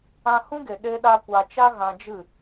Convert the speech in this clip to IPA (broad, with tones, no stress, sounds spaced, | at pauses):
ã˧ h ũ˦ ɡ e˨ ɗ e˦ ɗ a˦ kʷ a˧ t͡ʃ a˦ ɣ ã˧ d͡ʒ ɨ˦˨